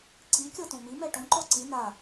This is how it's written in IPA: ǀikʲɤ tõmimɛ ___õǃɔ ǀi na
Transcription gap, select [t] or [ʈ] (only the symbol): ʈ